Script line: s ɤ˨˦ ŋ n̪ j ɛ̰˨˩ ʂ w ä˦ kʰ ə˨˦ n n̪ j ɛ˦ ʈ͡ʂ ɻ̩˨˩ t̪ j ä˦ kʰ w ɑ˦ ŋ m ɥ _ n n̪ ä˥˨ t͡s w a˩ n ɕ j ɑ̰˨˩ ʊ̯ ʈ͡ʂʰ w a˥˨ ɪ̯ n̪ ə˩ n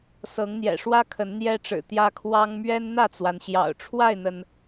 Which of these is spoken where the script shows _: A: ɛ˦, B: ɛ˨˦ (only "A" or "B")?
A